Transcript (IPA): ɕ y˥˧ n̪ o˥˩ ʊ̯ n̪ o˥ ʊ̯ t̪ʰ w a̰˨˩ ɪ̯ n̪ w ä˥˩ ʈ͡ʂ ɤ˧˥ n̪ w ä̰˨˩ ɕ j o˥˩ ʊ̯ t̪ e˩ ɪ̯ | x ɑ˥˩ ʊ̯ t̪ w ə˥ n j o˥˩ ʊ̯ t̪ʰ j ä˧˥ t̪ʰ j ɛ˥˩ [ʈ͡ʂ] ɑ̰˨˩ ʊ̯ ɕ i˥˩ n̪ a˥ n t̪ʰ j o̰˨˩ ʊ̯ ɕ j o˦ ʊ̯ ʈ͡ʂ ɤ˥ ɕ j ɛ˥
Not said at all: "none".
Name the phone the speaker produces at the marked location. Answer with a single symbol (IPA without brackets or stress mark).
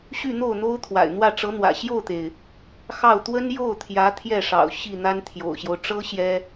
ʂ